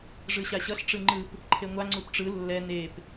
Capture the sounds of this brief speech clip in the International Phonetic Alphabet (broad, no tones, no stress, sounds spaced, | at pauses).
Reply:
ʐ ɯ ɕ a ɕ ʌ ɬ ʈ͡ʂ ɯ ŋ͡ǃ ɯ p | ǃʰ e ŋʷ a ŋ͡ǀ u p ʈ͡ʂ ɯ lː ɛ n e p